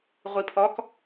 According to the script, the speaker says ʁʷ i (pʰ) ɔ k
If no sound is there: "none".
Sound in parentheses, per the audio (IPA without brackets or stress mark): pʰ